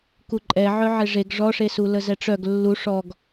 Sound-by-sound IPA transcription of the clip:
kuǃʼɛʕœʕe ʐeɡ ʐɔʂesu ləzɛʈ͡ʂœɡ lːu ʂɔɡ

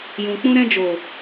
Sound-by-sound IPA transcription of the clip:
jũ˨k͡pũ˧ɾɛ̃˧ d͡ʒo˨

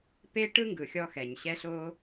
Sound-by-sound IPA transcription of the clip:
pe˦ ʈɯ˦ŋɡɯ˨xʲɔ˧xɛ˨ɲ ɕɛ˦ɬo˦

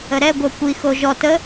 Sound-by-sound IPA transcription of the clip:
əɾɛ ɡʷœkʷi xoʒɔt ə

